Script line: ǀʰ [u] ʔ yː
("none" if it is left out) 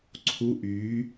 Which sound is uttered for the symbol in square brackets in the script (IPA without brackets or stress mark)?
u